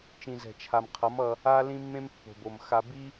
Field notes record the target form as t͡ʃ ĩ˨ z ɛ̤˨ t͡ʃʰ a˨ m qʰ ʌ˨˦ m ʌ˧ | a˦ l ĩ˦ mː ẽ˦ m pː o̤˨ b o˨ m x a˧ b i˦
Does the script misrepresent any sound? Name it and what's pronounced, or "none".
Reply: none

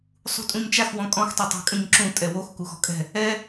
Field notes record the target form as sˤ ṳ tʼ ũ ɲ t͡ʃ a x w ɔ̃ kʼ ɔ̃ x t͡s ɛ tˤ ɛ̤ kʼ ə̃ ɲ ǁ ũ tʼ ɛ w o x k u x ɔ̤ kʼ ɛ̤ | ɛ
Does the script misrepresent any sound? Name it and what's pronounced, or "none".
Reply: t͡s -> tˤ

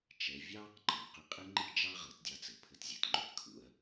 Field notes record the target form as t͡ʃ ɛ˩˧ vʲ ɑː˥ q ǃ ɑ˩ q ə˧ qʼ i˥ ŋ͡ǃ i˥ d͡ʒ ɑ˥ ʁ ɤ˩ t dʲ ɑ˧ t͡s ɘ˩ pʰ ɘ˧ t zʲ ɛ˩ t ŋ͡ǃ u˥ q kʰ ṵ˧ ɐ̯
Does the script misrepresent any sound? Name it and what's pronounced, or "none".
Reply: ə˧ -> ɪ˧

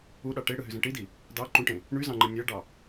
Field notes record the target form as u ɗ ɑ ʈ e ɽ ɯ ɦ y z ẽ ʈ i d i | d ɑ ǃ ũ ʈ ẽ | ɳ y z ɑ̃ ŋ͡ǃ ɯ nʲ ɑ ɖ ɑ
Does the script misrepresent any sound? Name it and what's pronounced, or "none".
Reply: none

